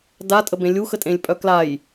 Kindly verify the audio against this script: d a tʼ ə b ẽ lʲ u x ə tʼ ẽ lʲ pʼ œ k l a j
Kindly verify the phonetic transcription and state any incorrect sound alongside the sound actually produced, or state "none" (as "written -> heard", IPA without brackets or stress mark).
none